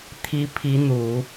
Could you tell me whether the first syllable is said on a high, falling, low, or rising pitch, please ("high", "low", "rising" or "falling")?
rising